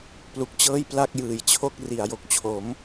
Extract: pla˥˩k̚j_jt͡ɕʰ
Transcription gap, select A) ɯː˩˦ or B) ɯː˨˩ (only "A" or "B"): B